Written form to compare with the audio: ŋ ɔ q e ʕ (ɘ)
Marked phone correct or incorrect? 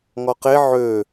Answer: incorrect